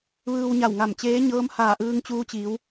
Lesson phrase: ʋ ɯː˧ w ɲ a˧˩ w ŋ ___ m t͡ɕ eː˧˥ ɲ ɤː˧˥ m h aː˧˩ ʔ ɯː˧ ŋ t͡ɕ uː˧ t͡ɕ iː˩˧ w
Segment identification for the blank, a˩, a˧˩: a˧˩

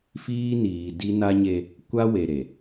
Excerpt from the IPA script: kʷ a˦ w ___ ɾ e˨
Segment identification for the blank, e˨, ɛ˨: e˨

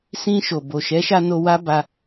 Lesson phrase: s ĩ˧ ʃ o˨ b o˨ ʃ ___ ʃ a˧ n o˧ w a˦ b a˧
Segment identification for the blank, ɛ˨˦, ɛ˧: ɛ˨˦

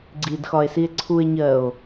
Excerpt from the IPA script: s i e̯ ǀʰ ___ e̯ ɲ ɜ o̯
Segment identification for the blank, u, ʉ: u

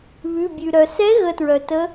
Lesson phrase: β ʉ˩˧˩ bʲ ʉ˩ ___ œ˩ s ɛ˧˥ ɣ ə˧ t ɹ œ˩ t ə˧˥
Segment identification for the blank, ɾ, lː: ɾ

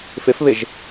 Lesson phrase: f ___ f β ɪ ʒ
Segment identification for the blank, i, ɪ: ɪ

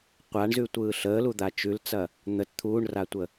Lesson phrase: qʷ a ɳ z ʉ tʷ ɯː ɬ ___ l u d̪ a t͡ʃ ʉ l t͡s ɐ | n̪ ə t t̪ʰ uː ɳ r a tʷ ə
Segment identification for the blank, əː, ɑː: əː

